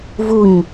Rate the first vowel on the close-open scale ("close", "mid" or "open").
close